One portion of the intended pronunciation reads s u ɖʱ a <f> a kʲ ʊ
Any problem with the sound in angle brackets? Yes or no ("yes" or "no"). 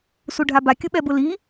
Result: yes